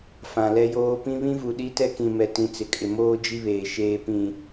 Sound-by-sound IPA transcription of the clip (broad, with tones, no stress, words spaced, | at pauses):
fã˨lɛ˦joː˦ pĩ˦βĩ˦vu˨ɗi˦ tɛ˦kĩ˨mɛ˨ tĩ˨t͡sɪ˨kʼɪ˨ moː˦ d͡ʒi˦βeː˨ ʃeː˨pĩ˨